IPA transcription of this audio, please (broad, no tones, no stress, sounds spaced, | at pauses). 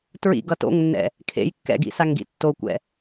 t ɹ ḭ ɡ ʌ t o̰ ŋ nː ɛ̰ | kʰ ḛ j kː ɛ̰ ɡ ḭ s a ŋ ɡ ḭ tː o kʷ ɛ̰